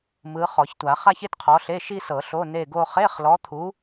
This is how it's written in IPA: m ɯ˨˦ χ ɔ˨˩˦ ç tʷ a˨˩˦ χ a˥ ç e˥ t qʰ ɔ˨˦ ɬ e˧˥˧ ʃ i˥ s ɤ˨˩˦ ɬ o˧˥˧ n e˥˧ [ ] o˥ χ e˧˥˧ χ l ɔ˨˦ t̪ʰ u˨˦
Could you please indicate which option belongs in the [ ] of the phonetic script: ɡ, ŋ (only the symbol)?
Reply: ɡ